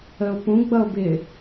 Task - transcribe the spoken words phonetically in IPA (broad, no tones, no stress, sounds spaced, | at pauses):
ə o̯ p ũ ɡ͡b ʌ o̯ b ɪ